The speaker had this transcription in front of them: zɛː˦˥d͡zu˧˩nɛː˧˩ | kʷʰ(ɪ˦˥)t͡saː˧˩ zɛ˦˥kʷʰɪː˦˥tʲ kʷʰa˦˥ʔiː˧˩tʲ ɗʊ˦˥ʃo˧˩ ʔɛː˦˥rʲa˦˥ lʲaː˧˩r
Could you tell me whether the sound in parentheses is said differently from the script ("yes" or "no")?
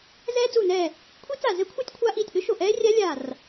yes